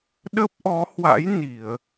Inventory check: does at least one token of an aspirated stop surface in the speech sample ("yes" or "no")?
no